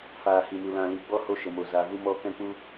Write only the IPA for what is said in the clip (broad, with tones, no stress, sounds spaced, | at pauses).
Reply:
f aː˨ h i˨ m u˨ l ã˨ l i˨ ɡ͡b ɔ˦ h o˧ ʃ ə˨ m o˨ z a˨ v u˧ m ɔ˧ k ɛ̃˧ k͡p u˧